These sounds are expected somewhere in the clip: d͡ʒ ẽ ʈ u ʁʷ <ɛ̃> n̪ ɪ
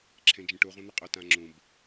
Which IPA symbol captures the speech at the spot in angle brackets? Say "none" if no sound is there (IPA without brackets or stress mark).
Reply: ɛ̃